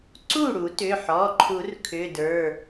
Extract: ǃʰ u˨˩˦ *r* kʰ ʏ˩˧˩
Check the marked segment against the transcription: correct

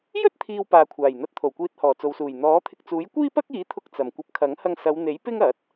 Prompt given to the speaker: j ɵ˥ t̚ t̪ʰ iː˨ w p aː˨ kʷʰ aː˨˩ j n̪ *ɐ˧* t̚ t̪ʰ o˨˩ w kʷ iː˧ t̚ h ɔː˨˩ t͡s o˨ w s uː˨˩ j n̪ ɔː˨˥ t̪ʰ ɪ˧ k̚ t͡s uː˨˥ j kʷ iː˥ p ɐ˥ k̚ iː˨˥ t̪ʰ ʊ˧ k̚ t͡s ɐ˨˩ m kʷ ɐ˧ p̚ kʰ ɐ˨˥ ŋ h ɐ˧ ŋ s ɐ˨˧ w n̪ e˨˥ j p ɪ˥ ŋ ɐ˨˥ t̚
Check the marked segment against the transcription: correct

